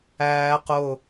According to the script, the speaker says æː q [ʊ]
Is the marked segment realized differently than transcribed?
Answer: no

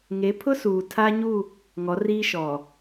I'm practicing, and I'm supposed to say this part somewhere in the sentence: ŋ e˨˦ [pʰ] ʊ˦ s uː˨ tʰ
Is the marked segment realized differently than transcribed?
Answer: no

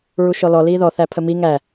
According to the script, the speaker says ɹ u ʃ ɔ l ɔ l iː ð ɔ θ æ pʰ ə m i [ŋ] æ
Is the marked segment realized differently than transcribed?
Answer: no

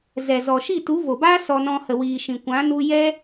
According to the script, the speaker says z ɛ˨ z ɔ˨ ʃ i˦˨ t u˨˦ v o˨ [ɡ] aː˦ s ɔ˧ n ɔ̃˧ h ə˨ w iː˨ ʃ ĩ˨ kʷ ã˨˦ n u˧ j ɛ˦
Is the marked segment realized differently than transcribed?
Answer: yes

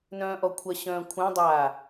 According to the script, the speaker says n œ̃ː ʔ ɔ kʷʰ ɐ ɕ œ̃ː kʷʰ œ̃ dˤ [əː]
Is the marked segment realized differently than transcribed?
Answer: yes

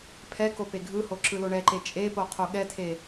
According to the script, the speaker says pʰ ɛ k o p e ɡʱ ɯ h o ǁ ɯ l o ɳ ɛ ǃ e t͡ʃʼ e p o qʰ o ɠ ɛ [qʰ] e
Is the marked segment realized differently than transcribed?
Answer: yes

